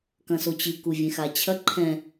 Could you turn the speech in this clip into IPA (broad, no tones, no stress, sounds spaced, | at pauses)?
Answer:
k ɐ̃ s o t͡ɕ ɨ k u vʲ ẽ x a t͡ɕʰ ɐ ǃʰ ɛ̃